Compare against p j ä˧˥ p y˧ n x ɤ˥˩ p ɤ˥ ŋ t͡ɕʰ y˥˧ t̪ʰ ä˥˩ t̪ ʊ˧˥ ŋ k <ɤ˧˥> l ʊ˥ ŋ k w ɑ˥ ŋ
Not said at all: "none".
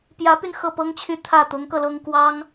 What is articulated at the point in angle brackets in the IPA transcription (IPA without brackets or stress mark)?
ɤ˧